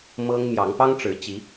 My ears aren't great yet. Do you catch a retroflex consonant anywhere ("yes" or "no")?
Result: yes